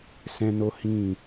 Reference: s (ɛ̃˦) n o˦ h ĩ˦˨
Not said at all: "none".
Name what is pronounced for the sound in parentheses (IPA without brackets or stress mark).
ɛ̃˦